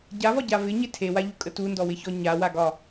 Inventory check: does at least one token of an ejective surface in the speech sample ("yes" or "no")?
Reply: yes